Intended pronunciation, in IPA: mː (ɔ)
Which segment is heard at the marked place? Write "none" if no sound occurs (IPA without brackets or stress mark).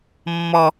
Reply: ɔ